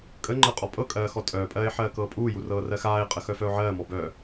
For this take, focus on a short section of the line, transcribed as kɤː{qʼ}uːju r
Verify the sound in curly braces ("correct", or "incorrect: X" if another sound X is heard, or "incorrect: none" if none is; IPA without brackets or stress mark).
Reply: incorrect: pʼ